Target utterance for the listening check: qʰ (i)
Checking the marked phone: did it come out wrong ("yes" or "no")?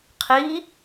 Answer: no